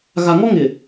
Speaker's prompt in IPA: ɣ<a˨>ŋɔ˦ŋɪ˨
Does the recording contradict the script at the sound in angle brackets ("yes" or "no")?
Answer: no